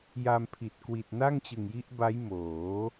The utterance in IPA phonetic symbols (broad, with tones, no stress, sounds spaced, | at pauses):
j a˧ m pʰ i˨˩ t̚ k w i˨˩ t̚ n a˥˩ ŋ t͡ɕ ɯ˨˩ ŋ j i˦˥ ʔ b a˦˥ j m oː˩˦